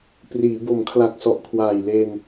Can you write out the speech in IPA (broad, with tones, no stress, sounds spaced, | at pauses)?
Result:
p r iː˩˦ b o˩˦ m kʰ l a˨˩ k̚ s ɔ˨˩ ʔ kʰ w aː˨˩ j l e˧ n